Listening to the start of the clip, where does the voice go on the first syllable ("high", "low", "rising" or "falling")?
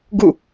falling